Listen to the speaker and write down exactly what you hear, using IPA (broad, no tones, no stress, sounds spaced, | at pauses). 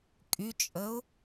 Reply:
kʼ y t͡ʃʼ ə ʊ̯